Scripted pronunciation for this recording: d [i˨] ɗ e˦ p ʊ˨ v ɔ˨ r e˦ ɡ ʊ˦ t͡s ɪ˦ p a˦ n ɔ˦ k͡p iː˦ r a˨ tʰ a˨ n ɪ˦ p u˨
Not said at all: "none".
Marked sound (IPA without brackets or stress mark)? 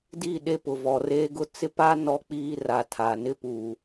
i˦˨